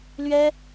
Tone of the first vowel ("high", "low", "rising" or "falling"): high